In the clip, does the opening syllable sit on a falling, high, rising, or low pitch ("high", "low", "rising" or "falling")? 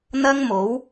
high